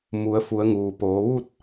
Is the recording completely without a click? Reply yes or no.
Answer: yes